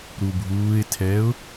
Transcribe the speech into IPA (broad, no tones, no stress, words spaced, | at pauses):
ɾubʱuːɪ̯tʰɛːʊ̯